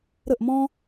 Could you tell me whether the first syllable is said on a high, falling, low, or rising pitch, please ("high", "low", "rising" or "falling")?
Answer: falling